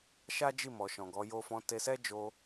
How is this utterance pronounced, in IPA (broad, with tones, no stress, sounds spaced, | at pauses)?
ʃ a˦ d͡ʒ i˦˨ m ɔ˨ ʃ ɔ̃˨ ɡ ɔ˨˦ j o˧ f ɔ̃˧ t e˧ s ɛ˦ d͡ʒ o˧